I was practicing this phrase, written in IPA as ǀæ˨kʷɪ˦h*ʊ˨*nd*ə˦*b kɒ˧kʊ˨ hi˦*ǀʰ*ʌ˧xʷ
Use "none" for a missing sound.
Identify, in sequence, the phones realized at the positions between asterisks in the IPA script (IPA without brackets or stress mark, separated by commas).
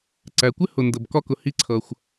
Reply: ʊ˨, ə˨, ǀʰ